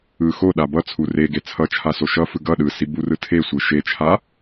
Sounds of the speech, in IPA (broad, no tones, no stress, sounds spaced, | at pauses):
ɯ x o ɗ a b ʌ t͡sʰ u r e ɡ e t͡sʰ ʌ t͡ʃʰ a s o ʃ ʌ f ɯ ɡ ʌ ɗ ɯ s i b u r ɯ tʰ e sʷ ɯ ʃ e t͡ʃʰ a